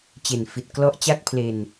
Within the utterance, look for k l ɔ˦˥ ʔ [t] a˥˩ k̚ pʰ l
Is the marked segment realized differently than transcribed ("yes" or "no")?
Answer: yes